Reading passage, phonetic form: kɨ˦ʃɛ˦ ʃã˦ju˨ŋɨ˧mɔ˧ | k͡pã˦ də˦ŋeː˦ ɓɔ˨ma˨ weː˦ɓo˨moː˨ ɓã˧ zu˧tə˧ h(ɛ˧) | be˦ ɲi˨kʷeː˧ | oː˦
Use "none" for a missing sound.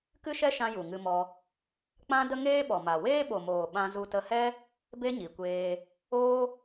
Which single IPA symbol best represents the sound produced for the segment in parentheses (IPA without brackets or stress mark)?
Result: ɛ˦